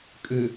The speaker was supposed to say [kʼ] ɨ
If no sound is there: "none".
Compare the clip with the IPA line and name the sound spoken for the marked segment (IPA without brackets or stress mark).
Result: kʼ